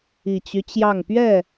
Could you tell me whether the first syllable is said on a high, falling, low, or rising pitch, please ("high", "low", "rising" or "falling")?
low